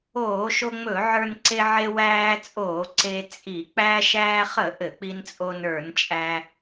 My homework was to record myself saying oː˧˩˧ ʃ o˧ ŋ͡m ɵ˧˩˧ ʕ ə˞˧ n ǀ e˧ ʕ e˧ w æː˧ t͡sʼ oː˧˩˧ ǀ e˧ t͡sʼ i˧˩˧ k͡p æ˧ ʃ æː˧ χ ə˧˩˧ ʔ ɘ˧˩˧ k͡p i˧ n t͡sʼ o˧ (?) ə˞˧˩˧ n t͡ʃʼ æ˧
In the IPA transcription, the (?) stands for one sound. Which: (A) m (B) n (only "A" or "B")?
B